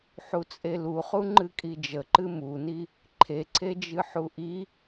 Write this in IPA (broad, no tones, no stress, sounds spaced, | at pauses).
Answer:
ħ u t͡sʼ e l u χ u ŋ͡ǃ ɨ kʼ i d͡ʒ ə ǃ ɨ m u n i | ǃʰ e ǀʰ e d͡ʒ ɨ ħ u ʔ i